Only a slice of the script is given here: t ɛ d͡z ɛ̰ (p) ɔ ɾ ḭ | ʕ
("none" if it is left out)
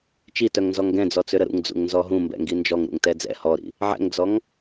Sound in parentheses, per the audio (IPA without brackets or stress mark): h